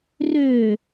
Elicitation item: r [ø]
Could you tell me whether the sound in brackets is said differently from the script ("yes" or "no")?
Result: no